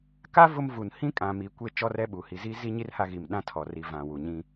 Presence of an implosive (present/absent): present